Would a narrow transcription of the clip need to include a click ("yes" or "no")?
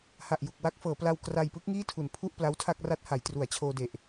no